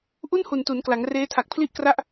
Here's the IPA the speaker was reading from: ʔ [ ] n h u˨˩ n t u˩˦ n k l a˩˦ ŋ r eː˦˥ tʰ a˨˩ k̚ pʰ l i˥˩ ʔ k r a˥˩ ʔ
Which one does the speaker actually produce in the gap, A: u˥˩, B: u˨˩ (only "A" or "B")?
A